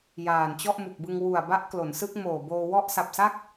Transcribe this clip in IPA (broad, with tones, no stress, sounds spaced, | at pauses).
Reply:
j aː˨˩ n t͡ɕ ɔ˥˩ ʔ m u˨˩ k̚ b ɯ˧ ŋ w u˨˩ a̯ b a˦˥ ʔ k l o˩˦ n s ɯ˦˥ k̚ m oː˨˩ b oː˧ w ɔ˦˥ ʔ s a˨˩ p̚ s a˥˩ k̚